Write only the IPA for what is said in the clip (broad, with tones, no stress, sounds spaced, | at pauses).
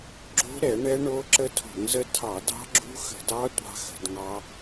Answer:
ɡ͡ǁ o̤˦˥ ɾ ɛ˧˩˧ ɳ ɛ˦˥ ɳ o˦˥ ǁ ə˦˥ tʰ o̤˧˩˧ ŋ z ə˦˥ tʰ ɑ˧˩˧ d ɑ̤˦˥ ɡ͡ǁ ṳ˦˥ x ə̤˧˩˧ d ɑ˦˥ tʷ ɑ̤˦˥ x ə̤˧˩˧ d ŋ ɑ˦˥